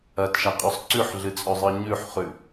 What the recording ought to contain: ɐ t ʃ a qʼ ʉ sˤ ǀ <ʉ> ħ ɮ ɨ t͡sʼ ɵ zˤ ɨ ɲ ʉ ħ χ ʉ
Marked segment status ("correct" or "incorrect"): correct